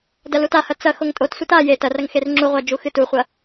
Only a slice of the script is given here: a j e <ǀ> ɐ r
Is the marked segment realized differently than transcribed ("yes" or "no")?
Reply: yes